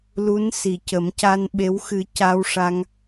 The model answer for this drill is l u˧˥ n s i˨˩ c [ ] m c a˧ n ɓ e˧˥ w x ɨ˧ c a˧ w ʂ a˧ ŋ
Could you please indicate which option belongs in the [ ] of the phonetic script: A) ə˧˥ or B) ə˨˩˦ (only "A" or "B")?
B